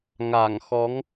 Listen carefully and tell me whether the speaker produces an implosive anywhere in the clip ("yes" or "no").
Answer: no